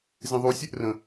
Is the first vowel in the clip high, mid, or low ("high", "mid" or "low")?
high